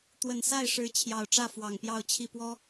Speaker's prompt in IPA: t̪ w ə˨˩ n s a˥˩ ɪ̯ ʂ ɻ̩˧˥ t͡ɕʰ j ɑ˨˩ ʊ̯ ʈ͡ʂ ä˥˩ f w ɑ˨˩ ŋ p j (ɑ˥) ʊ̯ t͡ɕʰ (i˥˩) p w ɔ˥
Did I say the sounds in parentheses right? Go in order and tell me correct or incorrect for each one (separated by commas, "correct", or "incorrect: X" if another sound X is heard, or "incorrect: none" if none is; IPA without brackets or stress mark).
incorrect: ɑ˥˧, correct